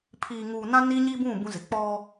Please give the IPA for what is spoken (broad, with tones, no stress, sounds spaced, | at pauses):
pʰ iː˨ ŋ uː˨ n ã˦ n i˦ ɲ i˦ b ũ˦˨ b ũ˦ z ɪ˨ k͡p ɔ˦